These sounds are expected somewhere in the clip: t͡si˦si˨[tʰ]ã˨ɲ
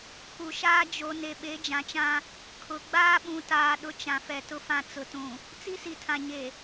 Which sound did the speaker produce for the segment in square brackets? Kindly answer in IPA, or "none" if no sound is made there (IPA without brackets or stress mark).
tʰ